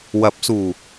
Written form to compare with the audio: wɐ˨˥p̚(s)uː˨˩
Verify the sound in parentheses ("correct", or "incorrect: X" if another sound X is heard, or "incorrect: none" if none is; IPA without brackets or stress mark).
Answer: correct